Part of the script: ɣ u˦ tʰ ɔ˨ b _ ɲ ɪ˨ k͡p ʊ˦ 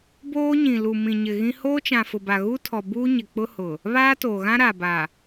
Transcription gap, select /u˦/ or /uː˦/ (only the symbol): uː˦